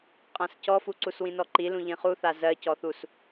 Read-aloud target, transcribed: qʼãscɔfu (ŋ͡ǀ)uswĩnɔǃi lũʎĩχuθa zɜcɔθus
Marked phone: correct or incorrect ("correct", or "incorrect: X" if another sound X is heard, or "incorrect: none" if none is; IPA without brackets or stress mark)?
incorrect: ǀ